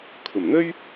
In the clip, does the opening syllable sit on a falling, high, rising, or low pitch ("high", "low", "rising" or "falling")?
low